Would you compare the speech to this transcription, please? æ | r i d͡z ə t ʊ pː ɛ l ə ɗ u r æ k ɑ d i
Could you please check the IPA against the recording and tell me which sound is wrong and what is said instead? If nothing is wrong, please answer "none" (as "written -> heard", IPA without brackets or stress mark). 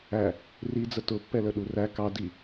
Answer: none